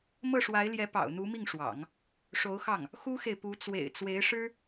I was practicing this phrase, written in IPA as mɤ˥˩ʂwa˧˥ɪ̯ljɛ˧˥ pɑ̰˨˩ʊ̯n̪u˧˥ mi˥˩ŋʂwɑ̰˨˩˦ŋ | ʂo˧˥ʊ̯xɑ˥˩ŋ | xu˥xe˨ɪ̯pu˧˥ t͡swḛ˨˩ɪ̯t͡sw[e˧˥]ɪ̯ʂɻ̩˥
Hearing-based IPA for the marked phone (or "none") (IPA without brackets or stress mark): e˧˥